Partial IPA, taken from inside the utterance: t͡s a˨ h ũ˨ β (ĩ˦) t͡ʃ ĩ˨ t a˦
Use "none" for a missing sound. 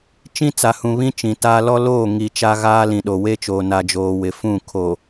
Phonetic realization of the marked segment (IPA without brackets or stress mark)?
ĩ˦